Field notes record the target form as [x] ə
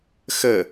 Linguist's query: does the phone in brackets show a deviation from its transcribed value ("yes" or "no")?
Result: no